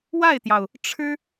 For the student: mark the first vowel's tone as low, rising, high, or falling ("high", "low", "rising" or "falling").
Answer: falling